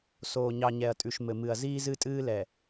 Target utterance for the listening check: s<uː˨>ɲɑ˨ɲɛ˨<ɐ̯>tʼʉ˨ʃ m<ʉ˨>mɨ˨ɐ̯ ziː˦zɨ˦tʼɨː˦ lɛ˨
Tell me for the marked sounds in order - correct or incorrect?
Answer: incorrect: oː˨, correct, incorrect: ɘ˨

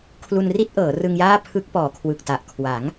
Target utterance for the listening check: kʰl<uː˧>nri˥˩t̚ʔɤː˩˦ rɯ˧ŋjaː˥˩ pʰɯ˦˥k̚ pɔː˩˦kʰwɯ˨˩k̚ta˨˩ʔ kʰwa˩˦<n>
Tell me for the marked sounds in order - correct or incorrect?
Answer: incorrect: u˧, incorrect: ŋ

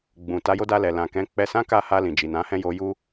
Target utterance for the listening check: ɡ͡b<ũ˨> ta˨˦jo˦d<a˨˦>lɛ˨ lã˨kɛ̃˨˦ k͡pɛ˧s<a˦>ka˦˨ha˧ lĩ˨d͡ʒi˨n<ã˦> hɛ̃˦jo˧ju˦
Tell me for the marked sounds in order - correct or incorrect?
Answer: correct, incorrect: a˧, incorrect: ã˦, incorrect: ã˨˦

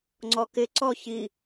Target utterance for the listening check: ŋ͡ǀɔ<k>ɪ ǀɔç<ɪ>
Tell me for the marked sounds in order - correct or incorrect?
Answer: correct, incorrect: i

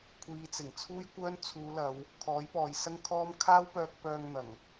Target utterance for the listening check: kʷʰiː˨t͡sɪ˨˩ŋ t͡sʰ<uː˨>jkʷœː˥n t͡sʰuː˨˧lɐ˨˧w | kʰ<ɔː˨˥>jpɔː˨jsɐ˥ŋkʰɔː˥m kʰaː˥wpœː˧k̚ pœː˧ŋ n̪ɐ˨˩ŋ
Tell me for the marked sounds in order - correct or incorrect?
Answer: incorrect: uː˥, correct

